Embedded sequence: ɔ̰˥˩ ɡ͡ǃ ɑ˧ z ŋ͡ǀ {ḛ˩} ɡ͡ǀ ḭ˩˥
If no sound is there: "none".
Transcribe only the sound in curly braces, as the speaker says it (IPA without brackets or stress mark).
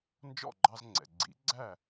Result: ɛ̰˩